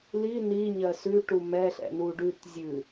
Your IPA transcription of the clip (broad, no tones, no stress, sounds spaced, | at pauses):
l i n i ɲ ɜ s ʉ ʈ u m ɛ ɬ ɛ̰ n u ɖ ʉ t zʲ ʉ